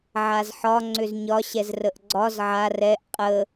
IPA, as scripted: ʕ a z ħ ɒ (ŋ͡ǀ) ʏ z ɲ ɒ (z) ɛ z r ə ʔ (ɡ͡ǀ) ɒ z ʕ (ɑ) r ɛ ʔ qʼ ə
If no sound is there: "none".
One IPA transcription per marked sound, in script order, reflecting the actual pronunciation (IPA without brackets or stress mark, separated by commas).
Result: ŋ͡ǀ, ɕ, ɡ͡ǀ, a